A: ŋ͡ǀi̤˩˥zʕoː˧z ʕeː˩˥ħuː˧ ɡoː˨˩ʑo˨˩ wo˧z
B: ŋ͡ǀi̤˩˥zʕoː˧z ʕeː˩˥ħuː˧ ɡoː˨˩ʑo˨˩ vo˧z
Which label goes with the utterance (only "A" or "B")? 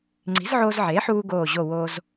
A